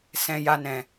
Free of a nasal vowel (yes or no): no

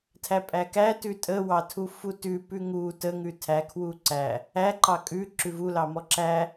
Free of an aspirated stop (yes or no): no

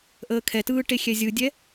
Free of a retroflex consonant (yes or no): no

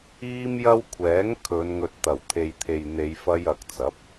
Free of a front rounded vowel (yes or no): yes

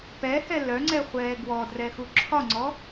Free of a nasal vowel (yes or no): yes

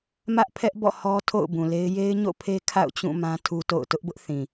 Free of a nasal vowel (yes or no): no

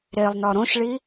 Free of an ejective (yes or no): yes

